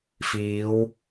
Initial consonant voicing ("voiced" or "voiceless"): voiceless